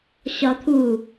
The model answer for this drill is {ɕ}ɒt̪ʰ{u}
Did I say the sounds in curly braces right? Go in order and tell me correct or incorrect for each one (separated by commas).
correct, correct